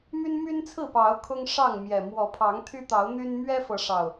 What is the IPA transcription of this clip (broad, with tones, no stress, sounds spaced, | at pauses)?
m y˦ n m y˦ n t͡sʰ ɹ̩˥˨ p ɑ˨˦ ʊ̯ kʰ ʊ˦ ŋ ʂ ɑ˥˨ ŋ m j ɛ˨˩ m w ɔ˨˦ pʰ ɑ˨˦ ŋ t̪ʰ y˦ t̪ ɑ˨˦ ʊ̯ n̪ y˦ n m ɥ ɛ˦ f ɤ˨˦ ʂ ɑ˨˩ ʊ̯